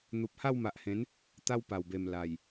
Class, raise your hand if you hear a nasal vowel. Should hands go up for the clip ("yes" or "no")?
yes